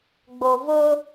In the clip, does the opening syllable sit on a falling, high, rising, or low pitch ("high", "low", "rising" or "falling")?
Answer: low